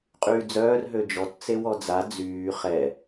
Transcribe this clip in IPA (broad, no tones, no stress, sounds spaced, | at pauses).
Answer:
qʼ yː d͡z œː r ɦ ø d͡ʒ ɔ t t͡s e w ɔ d͡z a d͡z yː χ ɛ